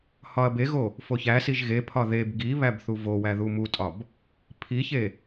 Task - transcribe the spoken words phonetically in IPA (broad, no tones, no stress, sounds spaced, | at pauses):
h ɒ ɐ̯ b e ɣ o | f o ç æ s i ʒ ɣ e pʰ ɒ ð e b ɡ i β æ b θ u v o w æ ð u m u tʼ ɒ b | pʰ i ç e